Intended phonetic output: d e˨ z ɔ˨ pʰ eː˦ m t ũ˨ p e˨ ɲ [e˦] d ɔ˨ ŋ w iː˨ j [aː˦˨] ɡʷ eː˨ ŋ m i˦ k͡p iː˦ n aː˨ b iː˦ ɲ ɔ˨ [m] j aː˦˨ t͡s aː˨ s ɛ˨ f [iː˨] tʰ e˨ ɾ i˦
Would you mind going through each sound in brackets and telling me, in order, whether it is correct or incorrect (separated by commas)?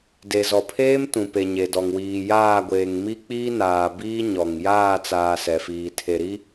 incorrect, correct, incorrect, correct